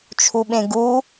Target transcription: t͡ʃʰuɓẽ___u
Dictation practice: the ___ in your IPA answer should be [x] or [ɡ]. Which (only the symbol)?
ɡ